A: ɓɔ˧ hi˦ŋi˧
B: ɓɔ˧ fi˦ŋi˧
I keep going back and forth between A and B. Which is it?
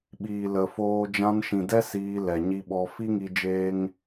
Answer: B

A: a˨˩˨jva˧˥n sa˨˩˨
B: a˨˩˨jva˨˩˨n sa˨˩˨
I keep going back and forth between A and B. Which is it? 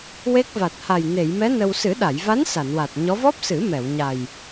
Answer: A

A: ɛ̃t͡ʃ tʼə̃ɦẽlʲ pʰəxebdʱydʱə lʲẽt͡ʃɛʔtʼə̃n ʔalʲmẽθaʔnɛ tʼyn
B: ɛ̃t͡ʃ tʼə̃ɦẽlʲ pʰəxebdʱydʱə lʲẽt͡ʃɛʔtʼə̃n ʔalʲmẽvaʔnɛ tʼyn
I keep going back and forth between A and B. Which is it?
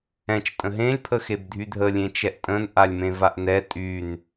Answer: B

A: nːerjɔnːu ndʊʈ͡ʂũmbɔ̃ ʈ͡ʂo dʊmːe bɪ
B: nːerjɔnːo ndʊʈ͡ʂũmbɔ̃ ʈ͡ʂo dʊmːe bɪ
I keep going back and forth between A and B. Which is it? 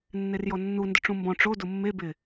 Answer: A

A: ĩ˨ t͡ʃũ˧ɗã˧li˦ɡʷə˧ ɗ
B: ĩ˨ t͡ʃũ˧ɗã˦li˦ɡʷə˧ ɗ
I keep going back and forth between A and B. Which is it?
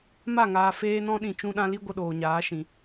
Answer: A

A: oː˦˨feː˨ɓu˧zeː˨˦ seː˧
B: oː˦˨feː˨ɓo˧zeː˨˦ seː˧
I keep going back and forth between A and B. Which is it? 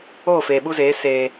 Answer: A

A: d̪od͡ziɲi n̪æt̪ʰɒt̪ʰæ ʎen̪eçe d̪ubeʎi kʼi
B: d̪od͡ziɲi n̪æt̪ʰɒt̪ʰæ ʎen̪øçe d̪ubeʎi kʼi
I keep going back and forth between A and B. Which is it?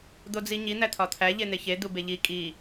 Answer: A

